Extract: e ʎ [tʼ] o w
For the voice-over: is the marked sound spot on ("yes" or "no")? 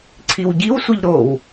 no